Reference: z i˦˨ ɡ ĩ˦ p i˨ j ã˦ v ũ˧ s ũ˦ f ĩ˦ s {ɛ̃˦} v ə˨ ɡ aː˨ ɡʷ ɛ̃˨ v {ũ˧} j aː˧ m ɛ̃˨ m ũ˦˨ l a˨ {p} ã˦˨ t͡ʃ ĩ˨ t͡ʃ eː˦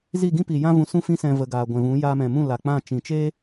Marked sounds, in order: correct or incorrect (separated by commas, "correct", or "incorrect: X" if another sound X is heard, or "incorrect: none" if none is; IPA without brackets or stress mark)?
incorrect: ɛ̃˧, incorrect: ũ˨˦, incorrect: k͡p